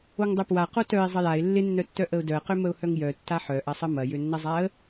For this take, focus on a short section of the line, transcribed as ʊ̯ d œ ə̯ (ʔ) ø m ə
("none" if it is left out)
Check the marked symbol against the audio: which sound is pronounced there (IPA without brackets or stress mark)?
q